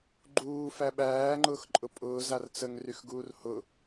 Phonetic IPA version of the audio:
ɡ͡ǃ uː f æ ɓ æː ŋ͡ǃ ʊː x ǃʼ ʊ pʼ ʊː z a r t͡s ə ŋ r y x ɡ uː r h ʊ

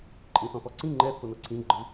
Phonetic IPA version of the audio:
ǃʼ ĩ s ɔ̃ θ ɔ ǀ ĩ ŋ͡ǃ ɛ θ o n ɤ ǀʰ ĩ ɡ͡ǃ ɯ

